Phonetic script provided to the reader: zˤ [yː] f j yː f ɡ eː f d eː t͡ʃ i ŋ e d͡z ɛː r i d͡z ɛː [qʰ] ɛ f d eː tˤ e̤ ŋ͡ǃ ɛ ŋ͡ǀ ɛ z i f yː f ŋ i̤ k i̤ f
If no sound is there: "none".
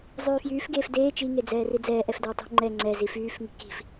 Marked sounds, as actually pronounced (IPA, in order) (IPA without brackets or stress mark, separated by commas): yː, ʔ